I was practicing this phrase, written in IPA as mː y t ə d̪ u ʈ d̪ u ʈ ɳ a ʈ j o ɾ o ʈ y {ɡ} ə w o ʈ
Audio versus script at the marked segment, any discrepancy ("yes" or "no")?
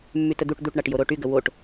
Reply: no